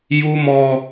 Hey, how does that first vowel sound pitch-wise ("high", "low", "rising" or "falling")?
high